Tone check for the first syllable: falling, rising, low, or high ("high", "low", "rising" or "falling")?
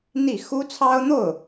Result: falling